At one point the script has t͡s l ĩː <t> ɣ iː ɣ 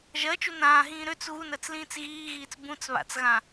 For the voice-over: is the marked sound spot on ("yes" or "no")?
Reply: no